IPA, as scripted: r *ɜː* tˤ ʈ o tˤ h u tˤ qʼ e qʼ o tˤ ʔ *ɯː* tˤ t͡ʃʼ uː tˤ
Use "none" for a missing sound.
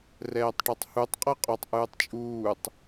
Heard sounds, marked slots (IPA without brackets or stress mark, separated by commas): ɛː, ɯː